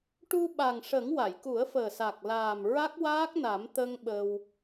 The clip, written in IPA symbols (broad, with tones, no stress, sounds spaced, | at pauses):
ʈ u˧ ɓ a˨˩ ŋ ʂ ə˨˩˦ ŋ w a˨˩˨ j k u˨˩˦ ə̯ f əː˨˩ s a˨˩ k̚ l aː˨˩ m ɹ a˦˥ k̚ w aː˦˥ k̚ n a˨˩˦ m t̪ ə˧ ŋ ɓ ə˧ w